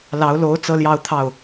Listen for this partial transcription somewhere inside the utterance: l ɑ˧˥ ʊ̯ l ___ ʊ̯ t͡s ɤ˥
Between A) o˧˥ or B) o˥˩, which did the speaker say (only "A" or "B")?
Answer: A